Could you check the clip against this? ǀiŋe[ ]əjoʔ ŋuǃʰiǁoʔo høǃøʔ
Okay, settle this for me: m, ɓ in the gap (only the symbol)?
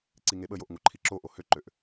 ɓ